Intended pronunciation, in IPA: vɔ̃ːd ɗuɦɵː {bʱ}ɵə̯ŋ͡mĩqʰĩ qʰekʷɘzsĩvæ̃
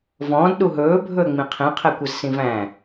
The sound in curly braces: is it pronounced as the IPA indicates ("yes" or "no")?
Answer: yes